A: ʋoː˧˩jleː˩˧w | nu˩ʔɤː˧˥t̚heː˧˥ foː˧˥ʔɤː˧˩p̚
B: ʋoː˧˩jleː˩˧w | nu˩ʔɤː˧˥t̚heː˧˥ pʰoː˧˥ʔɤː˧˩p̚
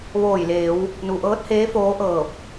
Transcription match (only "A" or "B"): A